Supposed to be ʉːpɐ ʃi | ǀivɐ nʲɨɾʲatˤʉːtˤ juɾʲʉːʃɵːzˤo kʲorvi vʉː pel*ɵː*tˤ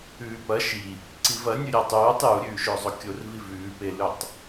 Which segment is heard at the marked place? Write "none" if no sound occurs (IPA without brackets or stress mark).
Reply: ɵ